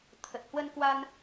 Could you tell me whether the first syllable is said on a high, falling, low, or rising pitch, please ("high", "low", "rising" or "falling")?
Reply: low